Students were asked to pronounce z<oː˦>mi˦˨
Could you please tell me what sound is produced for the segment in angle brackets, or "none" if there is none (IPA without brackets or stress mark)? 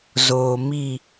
oː˨